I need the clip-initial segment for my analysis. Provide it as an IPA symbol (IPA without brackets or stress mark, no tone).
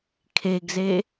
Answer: kʰ